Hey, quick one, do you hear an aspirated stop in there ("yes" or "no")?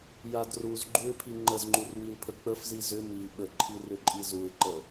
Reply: yes